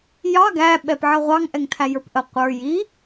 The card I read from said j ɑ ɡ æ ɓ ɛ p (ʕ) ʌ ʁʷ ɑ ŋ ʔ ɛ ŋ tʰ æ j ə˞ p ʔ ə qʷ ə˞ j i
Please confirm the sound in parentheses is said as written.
yes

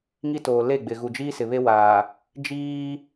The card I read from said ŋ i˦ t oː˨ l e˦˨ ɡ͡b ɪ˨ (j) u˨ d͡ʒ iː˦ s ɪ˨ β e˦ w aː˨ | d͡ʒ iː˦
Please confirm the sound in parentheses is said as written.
no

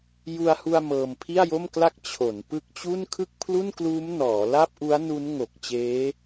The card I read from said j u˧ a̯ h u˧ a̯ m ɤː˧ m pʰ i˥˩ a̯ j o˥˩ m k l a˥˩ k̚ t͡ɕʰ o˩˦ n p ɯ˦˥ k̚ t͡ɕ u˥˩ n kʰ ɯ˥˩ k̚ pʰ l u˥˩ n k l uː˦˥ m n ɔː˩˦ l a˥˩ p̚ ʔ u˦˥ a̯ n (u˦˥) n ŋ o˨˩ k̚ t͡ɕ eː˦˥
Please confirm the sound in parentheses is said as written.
yes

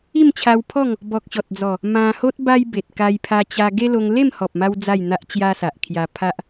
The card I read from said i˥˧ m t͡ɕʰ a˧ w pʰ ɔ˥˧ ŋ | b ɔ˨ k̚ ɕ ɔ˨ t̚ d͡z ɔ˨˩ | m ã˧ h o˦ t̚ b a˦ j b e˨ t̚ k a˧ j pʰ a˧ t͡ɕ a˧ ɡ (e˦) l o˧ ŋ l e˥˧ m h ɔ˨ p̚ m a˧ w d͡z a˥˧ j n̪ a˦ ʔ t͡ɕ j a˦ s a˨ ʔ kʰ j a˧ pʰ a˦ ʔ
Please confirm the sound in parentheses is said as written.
yes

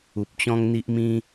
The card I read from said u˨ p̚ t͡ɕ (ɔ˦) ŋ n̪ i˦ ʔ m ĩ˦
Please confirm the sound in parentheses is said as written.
no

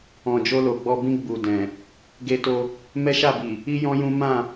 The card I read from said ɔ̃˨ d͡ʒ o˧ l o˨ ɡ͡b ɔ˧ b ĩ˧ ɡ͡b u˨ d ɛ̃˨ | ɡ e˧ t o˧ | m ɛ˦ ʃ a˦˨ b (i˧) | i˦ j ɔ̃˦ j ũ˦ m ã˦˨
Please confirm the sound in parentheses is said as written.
no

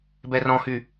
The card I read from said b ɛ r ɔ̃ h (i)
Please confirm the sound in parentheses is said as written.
no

